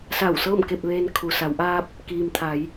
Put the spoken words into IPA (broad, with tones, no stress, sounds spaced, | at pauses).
s a˧˩ w s ɤː˥˨ m k e˥˨ p̚ ʋ eː˧ n kʰ u˩ s a˩˧ w ʔ aː˧ p̚ | k iː˩ m t̪ʰ a˩˧ j